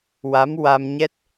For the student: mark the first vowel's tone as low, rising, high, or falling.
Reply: rising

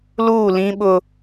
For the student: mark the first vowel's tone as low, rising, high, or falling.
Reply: falling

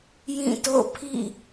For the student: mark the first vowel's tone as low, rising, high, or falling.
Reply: falling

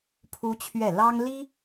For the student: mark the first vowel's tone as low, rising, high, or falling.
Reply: high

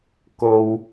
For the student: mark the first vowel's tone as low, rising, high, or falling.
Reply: low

